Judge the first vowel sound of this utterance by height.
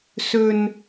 mid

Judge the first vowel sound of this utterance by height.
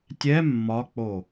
mid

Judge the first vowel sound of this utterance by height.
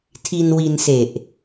high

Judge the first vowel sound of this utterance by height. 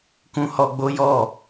high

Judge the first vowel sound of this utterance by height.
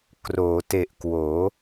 mid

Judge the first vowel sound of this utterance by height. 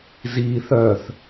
high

